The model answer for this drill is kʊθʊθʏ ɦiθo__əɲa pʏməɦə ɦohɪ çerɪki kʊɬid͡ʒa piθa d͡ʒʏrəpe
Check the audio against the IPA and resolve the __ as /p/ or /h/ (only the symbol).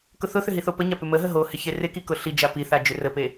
p